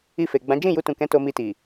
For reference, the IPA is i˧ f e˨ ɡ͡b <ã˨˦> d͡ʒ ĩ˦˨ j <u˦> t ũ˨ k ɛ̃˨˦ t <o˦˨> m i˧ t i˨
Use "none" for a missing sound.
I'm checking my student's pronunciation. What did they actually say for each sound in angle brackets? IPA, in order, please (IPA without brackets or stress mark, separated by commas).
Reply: ã˨˦, u˧, o˧